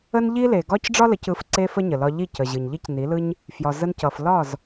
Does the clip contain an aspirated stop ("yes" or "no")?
no